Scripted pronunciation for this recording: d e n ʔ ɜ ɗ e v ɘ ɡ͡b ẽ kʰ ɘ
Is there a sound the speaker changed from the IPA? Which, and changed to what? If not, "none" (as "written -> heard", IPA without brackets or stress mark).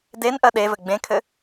none